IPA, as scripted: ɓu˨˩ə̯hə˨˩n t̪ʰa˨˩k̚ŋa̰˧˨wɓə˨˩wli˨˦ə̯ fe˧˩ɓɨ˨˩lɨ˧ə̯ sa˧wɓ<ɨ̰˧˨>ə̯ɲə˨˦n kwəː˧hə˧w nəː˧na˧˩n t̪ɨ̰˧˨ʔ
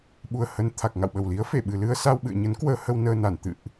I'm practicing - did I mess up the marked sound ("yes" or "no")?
no